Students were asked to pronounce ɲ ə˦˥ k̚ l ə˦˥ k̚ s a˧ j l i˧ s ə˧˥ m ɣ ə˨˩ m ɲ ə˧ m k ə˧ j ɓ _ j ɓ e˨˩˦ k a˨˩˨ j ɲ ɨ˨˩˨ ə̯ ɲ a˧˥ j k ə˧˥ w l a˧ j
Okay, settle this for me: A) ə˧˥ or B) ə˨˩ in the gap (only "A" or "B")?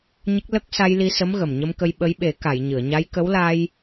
A